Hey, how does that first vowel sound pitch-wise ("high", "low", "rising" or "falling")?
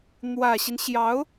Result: low